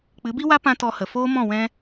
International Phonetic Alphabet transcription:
k͡p ɨ˨˦ b i˦ w a˦ p ã˦ t ɔ˧ h ə˨ f oː˦ m ɔ̃˦˨ w ɛ̃˦

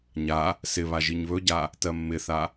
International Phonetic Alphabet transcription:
ɲ a | s ɪ β a ʒ i ɲ β ɵ ɟ a | t ɜ mː ɪ θ a

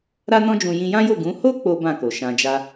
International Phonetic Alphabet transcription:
ɾ a˦ n ɔ̃˦ d͡ʒ ũ˧ j ĩ˧ j ã˦ j o˦˨ ɡ ũ˨˦ h o˦ k͡p o˦ b ã˦˨ k o˨ ʃ ã˧ d͡ʒ a˦

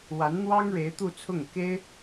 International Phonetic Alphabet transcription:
w a˧˥ n n̪ w ɑ˥ ŋ ɻ e˧˥ ɪ̯ t̪ u˥˧ t͡sʰ ʊ˥˩ ŋ k e˥ ɪ̯

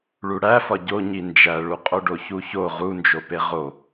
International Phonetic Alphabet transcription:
ɭ u ɽ æ f ɒ ɟ o ɲ i n d͡ʒ æ ɭ u qʼ o ɖ o ç u ç o ʁ u n d͡ʒ o p e ʁ o

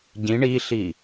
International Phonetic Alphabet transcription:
ɟ ĩ ɳ i ɬ i

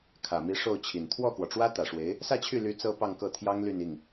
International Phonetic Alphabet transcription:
kʰ ä˨˩ m i˧˥ ʂ o˥˩ ʊ̯ t͡ɕʰ i˨˩ n t̪ʰ w ɔ˥˩ k w ɔ˩ ʈ͡ʂ w ä˥ t̪ ä˨˩ ʂ w e˧˥ ɪ̯ | s ä˥˧ t͡ɕʰ y˥˩ l y˧˥ t͡s ɤ˥ p ɑ˥˧ ŋ k ɤ˥˩ t̪ʰ j ɑ˥ ŋ l y˥˧ n i˥˩ ŋ

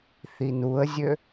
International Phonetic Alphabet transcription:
θ i n u ə̯ zʲ ø

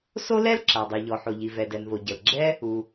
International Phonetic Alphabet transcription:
s o˥ l ɛ˥ l ǁ a˩ dˤ ø˩ ʎ ɔ˩ ħ o˩ ʎ i˩ v ɛ˩ d ɛ˩ n v o˩ ɟ ə˩ l ɡ͡ǁ ɛ˥ | u˩

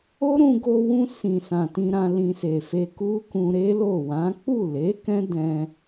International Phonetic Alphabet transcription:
o˦ ɾ ũ˧ ɡ o˧ w ũ˧ s ĩ˨ s ã˨ t ĩ˧ ɾ ã˧ l ĩ˧ s e˨ f e˧ k u˦ k ũ˧ ɾ e˦ l o˦˨ w ã˨˦ k͡p u˦˨ l e˨˦ k ɛ̃˦ d ɛ̃˧

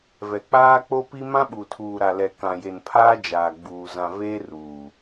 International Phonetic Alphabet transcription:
v ɛ˨ k͡p aː˦ k͡p o˦ p i˦ m ã˦ ɓ u˨ tʰ uː˨ ɾ a˨ l ɛ˨ k ã˨ j e˨ n pʰ aː˦ d͡ʒ aː˨ ɡ͡b uː˨ z ã˨ v eː˦ r uː˨

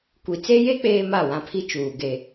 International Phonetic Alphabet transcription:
kʷ i˨ t͡s e˦ j e˦ k͡p eː˦ m a˦˨ w ã˦ pʰ i˦ t͡ʃ uː˨ ɡ e˦

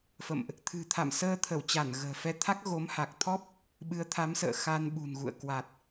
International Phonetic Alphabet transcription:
f ə̰˧˨ m ʔ | t̪ʰ ɨ̤˨˩ t̪ʰ a̰˧˨ m s əː˧ t̪ʰ ə˧˩ w t͡ɕ a˧˩ n ɣ ə̤ː˨˩ f ɛ˧ t̪ʰ a˦˥ k̚ ɣ o˨˦ m h a˨˩ k̚ t̪ʰ ɔ˦˥ p̚ | ɓ ɨ˨˦ ə̯ t̪ʰ a˨˦ m s ə̰ː˧˨ x a˧ n ɓ ṳ˨˩ n ɣ ṵ˧˨ ə̯ k w a˨˩ t̚

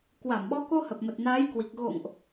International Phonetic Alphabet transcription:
k w a˧˩ m ɓ ɔ˨˦ k o˧ h ə˨˩ p̚ m ə˨˩ t̚ n aː˨˦ j k w i˨˩ k̚ ɣ o̰˧˨ ŋ ʔ

